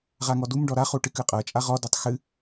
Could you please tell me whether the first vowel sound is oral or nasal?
oral